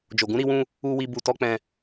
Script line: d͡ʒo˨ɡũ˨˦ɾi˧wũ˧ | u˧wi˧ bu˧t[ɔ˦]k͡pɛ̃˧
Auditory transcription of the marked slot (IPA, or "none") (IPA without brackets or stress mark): ɔ˦